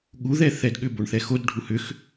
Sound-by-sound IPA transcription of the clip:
ɠ u ð ɛ θ ɛ d ɠ ʏ b o ɳ θ ɛ x o d ɖʱ u h ʏ x

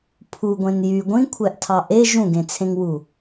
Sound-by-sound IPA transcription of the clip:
pʰ u ɡʷ ẽ n j y ɡʷ ĩ kʷʰ æ ʔ tʰ ɑ ʔ e ʒ ũ ɡ ẽ t͡sʰ ẽ ŋ w u

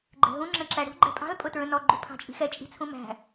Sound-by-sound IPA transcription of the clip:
ɡ͡ǃ ɛ̤ ɦ ũ ŋ͡ǁ ə̃ ǁ æ ɽ ṳ ɡ͡ǃ ɛ̤ pʼ ɑ̤ l pʼ ʊ t ɹ ə̃ n ɔ ɡ͡ǃ u pʰ ɑ̤ t͡ʃʼ i̤ x ɛ t͡ʃʼ i̤ t͡sʰ ũ m æ̤

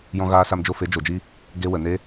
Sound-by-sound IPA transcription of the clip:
j ɔ̃˧ ɣ aː˧ s a˧ m d͡ʒ o˧ f e˨˦ d͡ʒ o˨ d͡ʒ i˦ | ɡ e˧ w ə˨ n e˦

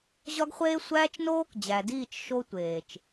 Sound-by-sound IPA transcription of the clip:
ʑ ɒ˦ ɡ χʷ eː˦ sʷ æː˦ t͡ʃ n oː˦ k d͡ʑ æ˨ d iː˦˨ t͡ʃ ʃ o˦ tʷ eː˨ t͡ʃ

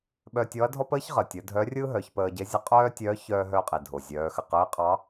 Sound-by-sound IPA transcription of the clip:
ɓ œ˧ tʲ ɔ˧˥ ɐ̯ dʱ ɔ˥ p əː˥ ç ʁ əː˩ tʲ ə˩˧ dʱ œ˧˥ rʲ ɯː˥ ɦ œ˩˧ ç p əː˧ ɟ e˧˥ zʲ ə˧˥ qʼ œː˥ tʲ œ˧˥ ç œː˧ ɦ œ˧ qʼ i˩ dʱ o˩ zʲ œː˩˧ x ə˩ q ɯː˧˥ qʼ ɑ˧˥

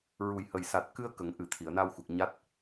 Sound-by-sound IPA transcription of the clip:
ɹ u˨˩ j h ə˨˩ j s a˨˩ t̚ k ɨ˧ ə̯ k ə˨˩ ŋ ʔ ɨ˨˩ t̪ʰ i˨˩˨ ə̯ n a˧ w x u˨˩ k̚ ɲ a˦˥ t̚

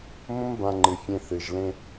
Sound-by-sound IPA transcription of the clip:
m õ˦ m b ã˧ ŋ͡ǃ ɨ˨ fʲ ẽ˧ θ ɨ˨ ʒ l ẽ˧

